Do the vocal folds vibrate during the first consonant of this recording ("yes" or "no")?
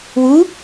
yes